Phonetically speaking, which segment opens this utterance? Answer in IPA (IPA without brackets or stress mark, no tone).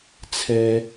t͡sʰ